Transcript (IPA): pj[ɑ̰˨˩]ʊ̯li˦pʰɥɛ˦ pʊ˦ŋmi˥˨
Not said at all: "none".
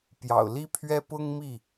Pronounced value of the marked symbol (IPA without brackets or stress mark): ɑ̰˨˩